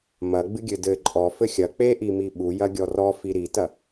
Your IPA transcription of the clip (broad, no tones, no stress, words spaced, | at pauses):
mɐ ɡ͡bɨɡʲɘdɘ ǃʼɔ fɘxʲɐ k͡peʔimi ɓu jɐɡʲɔrɔ fiɾitɐ